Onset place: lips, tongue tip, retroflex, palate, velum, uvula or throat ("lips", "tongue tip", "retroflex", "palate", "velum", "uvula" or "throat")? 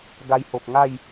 velum